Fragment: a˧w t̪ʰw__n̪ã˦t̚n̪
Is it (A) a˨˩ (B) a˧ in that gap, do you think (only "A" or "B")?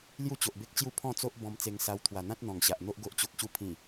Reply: A